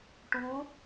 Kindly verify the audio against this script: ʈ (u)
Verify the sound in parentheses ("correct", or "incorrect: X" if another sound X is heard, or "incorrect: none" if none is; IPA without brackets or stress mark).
incorrect: uː